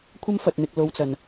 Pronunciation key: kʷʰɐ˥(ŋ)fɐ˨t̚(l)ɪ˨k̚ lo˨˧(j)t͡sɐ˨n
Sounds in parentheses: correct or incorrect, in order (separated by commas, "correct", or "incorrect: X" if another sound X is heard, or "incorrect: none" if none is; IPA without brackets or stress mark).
incorrect: m, incorrect: n̪, incorrect: w